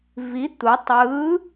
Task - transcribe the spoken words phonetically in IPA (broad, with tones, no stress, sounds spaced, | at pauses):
v i˨˥ t̪ u˩˧ tˤ ɯː˨˥